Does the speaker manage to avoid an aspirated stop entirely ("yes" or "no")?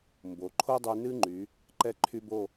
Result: no